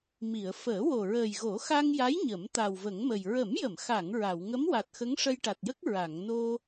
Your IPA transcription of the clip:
mi˨˩˨ə̯ fəː˨˩˦wo˨˩ ɹəː˨˩jɣo˨˩˦xa˧ŋja˧˥j ɲə˨˩˦m t̪a˨˩wvə˨˩˦ŋmə˨˩j ɹə˨˩˦mjə˨˩˨mxa˨˩˨ŋ ɹa˨˩˨w ŋə˧˥mwa˨˩t̚xə˧˥ŋ ʂə˧jʈa˨˩t̚jə˦˥k̚ ɹa˨˩˨ŋno˧

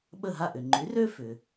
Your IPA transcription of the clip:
ɓə˥˩ɦa˥˩ʔʏ˩ ŋ͡ǃy˩˥rø˥fʏ˩

